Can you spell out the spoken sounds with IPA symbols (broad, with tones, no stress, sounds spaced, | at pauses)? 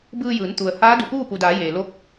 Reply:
b ɯː˧ j ɯː˩˧ n t̪ u˩ ə̯ h aː˧˥ d u˩ p uː˥˨ p u˩ d aː˩˧ j eː˩ l o˧˥ k̚